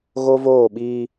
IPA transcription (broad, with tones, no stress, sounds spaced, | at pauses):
ɣ o˦ v oː˦˨ ɓ iː˦